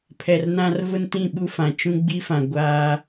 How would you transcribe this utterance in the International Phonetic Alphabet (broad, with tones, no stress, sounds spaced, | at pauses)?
pʰ ɛ˨ r n ã˦ r v ʊ˦ n t ĩ˦˨ ɓ u˦ f ã˨ t͡ʃ ũ˦ ɡ͡b i˦ f ã˨ ɡʷ aː˦